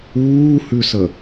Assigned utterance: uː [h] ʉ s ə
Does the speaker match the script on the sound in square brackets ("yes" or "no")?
yes